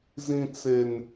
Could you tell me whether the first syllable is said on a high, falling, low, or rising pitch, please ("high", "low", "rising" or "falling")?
high